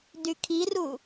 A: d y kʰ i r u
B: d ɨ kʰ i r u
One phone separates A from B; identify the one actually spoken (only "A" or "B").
A